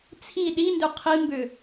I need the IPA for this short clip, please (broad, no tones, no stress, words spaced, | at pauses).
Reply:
t͡sʰi ɗindʏ qʰimbʏ